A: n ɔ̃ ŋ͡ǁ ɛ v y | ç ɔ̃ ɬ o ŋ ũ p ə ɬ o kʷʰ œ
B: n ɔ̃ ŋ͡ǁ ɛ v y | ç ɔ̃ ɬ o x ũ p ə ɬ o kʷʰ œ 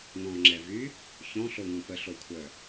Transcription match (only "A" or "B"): A